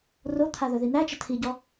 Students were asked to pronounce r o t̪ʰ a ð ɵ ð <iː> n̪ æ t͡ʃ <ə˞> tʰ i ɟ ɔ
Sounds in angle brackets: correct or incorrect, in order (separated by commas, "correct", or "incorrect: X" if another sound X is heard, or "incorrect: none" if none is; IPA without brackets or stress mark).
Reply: incorrect: i, incorrect: ə